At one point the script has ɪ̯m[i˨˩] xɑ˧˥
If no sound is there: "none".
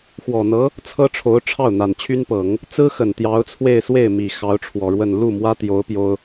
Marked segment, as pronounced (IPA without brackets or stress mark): i˨˩